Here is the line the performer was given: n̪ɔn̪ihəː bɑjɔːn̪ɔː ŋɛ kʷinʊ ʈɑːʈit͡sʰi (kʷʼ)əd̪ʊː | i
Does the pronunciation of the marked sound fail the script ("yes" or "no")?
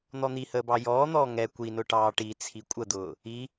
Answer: no